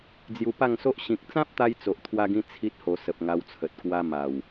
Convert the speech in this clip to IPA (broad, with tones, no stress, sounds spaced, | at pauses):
d͡z j u˧ p a˥˧ ŋ s o˦ ʔ ɕ ĩ˨ k̚ t͡s ã˦ p̚ t̪ a˧ j t͡s o˨ ʔ t̪ʰ w a˧ ɡ ĩ˧ t͡sʰ i˦ t̚ h o˧ s ə˨ p̚ ŋ a˧ w t͡sʰ ə˨ t̚ k w a˧ m a˨˩ w